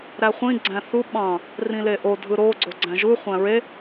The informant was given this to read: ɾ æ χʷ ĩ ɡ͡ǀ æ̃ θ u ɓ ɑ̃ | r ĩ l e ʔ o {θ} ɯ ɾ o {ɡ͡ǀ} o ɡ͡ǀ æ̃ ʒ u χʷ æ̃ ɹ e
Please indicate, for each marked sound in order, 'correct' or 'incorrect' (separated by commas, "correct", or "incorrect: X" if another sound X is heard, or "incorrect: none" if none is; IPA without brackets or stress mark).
incorrect: dʱ, correct